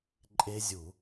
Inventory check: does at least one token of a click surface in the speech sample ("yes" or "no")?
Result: yes